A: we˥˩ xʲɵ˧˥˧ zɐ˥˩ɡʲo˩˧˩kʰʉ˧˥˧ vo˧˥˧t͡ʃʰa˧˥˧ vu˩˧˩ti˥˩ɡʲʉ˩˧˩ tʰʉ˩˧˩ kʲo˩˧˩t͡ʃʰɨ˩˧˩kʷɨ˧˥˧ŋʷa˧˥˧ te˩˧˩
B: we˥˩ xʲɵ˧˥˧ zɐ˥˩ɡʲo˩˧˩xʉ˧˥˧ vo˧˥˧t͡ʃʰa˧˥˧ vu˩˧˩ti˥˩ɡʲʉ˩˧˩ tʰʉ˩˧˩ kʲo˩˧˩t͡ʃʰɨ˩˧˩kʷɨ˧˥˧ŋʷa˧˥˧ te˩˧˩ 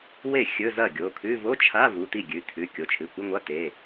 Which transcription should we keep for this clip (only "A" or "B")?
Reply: A